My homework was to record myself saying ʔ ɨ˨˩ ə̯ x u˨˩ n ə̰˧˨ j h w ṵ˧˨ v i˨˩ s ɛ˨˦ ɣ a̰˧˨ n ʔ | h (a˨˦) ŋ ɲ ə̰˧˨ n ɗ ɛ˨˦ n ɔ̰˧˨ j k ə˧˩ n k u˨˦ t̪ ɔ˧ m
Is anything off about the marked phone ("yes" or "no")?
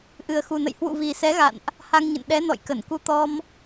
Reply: yes